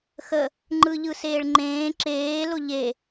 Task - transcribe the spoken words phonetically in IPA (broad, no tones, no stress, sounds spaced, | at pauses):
x ə | ŋ͡ǃ ɯ ʎ ɯ s eː ɭ ŋ͡ǃ ẽː ǁ eː l ʊ ʎ e